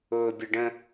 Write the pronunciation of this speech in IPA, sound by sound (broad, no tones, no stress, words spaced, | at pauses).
ʊːbʲəɖə̃